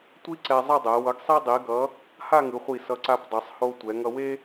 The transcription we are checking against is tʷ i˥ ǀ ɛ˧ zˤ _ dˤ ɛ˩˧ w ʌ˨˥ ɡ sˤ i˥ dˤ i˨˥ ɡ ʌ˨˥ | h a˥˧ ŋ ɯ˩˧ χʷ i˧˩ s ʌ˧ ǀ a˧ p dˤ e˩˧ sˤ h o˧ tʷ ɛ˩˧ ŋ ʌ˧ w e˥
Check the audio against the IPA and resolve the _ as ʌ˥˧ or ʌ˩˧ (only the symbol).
ʌ˥˧